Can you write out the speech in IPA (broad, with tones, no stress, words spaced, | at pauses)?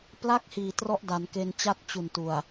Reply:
pla˥˩k̚hiː˨˩ trɔ˥˩ʔda˩˦nke˧nt͡ɕa˥˩t̚ t͡ɕu˨˩ntu˨˩a̯